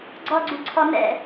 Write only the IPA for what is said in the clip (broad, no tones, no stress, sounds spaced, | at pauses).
ɡ͡ǀ ɔ ɡ͡ǀ u ǀʰ ɔ n ɛ̰